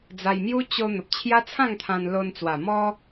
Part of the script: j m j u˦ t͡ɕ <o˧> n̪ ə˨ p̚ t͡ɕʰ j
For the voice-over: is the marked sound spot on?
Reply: yes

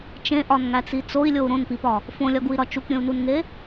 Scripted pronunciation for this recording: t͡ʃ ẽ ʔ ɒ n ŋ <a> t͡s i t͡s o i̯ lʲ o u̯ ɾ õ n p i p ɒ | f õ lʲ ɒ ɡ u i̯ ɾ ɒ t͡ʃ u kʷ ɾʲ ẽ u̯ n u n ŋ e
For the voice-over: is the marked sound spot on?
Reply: no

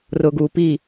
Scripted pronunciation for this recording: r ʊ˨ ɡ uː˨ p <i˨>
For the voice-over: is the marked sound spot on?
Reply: no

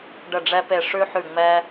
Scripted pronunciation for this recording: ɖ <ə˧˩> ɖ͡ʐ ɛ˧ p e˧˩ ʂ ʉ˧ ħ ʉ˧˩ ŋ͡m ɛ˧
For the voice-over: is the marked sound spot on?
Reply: yes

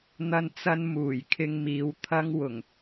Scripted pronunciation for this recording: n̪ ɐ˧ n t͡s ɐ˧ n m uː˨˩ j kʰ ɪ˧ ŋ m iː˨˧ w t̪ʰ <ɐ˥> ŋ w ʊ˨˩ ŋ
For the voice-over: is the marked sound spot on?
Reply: yes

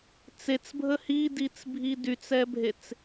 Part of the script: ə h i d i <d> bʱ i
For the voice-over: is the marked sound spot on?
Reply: no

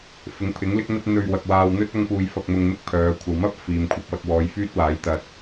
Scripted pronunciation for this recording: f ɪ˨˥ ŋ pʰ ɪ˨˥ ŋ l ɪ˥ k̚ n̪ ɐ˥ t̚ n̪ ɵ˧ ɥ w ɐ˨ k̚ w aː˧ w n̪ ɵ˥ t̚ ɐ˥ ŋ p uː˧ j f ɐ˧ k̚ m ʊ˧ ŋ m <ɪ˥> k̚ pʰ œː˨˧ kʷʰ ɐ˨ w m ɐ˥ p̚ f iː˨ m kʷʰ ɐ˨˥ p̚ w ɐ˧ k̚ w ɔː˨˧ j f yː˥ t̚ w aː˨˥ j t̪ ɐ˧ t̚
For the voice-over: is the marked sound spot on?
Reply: yes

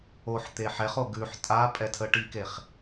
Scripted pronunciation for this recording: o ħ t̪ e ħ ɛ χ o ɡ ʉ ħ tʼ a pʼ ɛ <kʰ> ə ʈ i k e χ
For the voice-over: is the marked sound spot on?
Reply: no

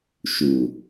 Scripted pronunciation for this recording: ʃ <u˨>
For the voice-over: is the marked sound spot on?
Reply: yes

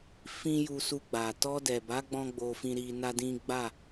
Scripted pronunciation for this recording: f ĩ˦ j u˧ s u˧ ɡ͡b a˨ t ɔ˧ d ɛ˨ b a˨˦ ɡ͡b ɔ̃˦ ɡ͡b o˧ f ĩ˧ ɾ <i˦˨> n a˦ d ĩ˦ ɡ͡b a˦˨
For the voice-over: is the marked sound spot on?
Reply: no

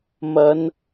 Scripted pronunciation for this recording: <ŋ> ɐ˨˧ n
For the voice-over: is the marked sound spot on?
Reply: no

